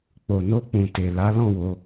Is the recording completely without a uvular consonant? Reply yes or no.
yes